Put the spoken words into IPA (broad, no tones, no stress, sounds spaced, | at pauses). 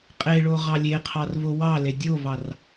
qʼ e ɭ o ʁ ɑ lʲ e qʰ ɑ r v o w ɑ l e dʲ o v ɑ r